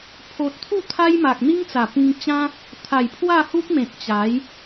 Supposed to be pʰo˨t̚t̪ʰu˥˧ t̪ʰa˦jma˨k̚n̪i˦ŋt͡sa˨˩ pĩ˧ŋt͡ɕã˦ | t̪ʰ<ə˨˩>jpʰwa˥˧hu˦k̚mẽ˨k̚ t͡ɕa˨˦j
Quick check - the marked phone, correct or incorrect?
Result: incorrect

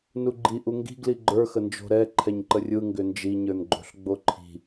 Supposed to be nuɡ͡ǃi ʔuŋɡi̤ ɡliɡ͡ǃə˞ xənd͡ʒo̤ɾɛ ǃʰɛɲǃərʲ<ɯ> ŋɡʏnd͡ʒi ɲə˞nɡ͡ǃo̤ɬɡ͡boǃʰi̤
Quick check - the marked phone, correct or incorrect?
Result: correct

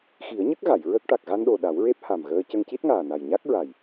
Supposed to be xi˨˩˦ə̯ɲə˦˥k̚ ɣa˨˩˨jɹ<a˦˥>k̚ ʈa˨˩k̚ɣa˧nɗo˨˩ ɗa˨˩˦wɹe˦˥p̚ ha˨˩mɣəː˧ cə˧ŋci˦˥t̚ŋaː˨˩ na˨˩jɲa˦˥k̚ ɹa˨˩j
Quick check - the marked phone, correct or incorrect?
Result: incorrect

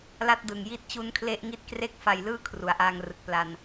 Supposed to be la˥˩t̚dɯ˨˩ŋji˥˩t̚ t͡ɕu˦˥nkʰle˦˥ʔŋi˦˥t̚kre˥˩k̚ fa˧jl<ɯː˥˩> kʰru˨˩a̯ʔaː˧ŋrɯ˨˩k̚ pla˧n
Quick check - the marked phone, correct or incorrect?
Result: correct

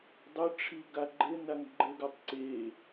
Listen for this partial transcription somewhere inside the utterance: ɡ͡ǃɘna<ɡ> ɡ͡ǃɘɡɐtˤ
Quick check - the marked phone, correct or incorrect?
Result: incorrect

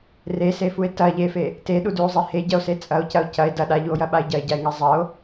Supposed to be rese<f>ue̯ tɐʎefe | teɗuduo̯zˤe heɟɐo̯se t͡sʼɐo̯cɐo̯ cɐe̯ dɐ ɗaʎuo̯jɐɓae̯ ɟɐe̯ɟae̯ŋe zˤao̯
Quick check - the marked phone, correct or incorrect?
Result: correct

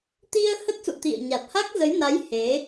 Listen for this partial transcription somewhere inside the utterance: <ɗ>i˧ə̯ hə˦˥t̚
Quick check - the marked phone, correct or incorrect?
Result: incorrect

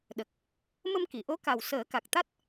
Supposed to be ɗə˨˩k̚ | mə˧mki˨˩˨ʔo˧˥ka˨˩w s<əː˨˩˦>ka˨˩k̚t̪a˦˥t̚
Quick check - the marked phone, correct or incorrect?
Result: correct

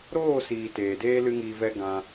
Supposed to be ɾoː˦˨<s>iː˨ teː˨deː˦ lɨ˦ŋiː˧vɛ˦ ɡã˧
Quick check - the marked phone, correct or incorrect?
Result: correct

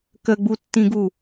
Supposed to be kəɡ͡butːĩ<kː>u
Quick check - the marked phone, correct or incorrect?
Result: incorrect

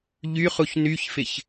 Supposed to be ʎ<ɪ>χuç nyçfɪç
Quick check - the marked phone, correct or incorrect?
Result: incorrect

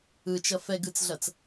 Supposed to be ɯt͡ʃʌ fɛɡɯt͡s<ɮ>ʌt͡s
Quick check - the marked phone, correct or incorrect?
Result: correct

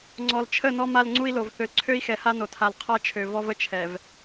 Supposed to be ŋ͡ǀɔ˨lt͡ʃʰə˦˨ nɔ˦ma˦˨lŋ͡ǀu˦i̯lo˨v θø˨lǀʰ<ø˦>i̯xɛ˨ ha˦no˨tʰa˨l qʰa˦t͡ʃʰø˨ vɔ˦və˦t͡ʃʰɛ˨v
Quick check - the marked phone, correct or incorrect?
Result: correct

